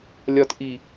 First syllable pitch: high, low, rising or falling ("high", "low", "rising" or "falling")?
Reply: low